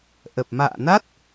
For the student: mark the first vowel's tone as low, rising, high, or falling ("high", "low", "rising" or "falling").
low